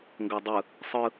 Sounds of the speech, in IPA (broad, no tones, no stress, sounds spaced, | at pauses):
ŋ ɡ ɤ dˤ ɯ | sˤ ɯ